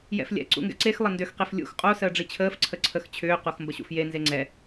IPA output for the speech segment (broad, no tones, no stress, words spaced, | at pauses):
jɛ̰flʲɛ̰ ǀṵŋɡɛ̰ǀex lˠəndʏx qeflʲṵx qʼo səːɖ͡ʐit͡ɕʰəːf ǀʰəǀʰəx t͡ɕʰʏː qoxmbəɕṵfje nzeŋ͡ǀɛ